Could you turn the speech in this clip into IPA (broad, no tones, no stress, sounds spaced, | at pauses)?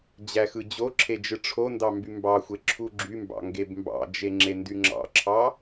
d͡ʑ æ x ɯ d͡ʑ o ǁʰ e d͡ʒ ɯ ʈ͡ʂʰ o n d ɑ m b y m b ɑ xʷ e ǁʰ u ɡ͡ǁ y m b ɑ̰ ŋ ɡ e b m b ɑ̰ d͡ʒ e ŋ͡ǁ e n d y ŋ͡ǁ ɑ̰ ǁʰ ɑ